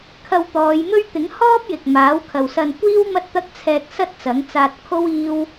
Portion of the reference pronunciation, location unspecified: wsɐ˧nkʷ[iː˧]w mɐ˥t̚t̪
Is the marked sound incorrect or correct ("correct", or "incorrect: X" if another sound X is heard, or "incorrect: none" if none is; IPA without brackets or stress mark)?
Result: incorrect: iː˥